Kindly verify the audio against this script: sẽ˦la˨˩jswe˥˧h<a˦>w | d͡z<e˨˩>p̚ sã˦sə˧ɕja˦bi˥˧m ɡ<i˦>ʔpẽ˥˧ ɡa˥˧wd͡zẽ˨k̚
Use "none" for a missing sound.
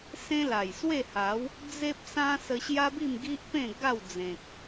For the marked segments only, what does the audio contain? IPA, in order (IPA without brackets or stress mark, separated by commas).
a˨˦, e˦, i˦